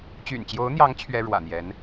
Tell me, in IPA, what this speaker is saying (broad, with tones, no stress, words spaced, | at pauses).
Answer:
t͡ɕy̰˨˩nt͡ɕjo˧˥ʊ̯n̪jɑ˧˥ŋ t͡ɕʰɥɛ˥ɻwä̰˨˩n̪jɛ˧˥n